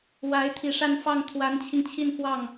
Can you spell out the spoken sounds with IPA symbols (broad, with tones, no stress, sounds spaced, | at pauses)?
w a˧˥ ɪ̯ t̪ʰ i˨˩ ʂ a˥˧ n f ɑ˥˩ ŋ t̪ʰ w a˧˥ n t͡ɕʰ i˧ ŋ t͡ɕʰ i˥˧ n f w ɑ˥˩ ŋ